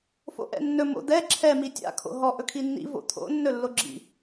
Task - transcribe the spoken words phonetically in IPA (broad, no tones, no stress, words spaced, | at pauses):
fo̰ʔɛ̰nːɵ mo̰d̪ɛ ǁʰɛ mitʲa̰ kʰo̰ɦɔ ʔɵkʰinːḭ vo̰t̪ʰo̰ nːɵlːoɡ͡ǁḭ